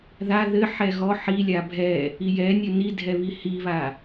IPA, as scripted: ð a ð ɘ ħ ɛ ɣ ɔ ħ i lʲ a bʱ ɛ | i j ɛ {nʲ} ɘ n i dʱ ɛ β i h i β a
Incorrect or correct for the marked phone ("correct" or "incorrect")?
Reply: correct